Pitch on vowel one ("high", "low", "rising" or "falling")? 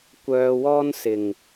low